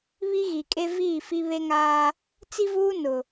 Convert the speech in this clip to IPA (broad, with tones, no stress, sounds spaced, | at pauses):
β i˦ ɣ i˨ kʼ e˦ v iː˦˨ f i˦ β e˦ ŋ aː˦ | t͡s i˦ v uː˦ n ʊ˨